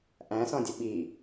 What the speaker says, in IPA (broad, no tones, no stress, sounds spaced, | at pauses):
ʔ æ̃ s ɔ̃ dʲ ə ɓ i